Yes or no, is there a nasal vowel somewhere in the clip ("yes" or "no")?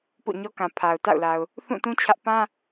yes